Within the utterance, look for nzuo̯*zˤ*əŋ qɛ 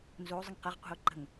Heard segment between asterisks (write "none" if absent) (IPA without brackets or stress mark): zˤ